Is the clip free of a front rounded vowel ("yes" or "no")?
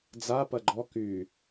no